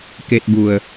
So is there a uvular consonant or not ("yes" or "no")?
no